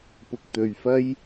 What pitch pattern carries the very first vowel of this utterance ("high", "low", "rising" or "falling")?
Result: low